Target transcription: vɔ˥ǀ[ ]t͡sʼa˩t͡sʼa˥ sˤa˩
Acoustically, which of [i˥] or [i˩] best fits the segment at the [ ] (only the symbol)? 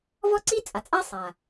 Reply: i˥